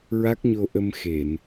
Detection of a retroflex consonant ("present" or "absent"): absent